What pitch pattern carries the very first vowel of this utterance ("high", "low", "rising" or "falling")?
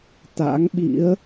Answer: rising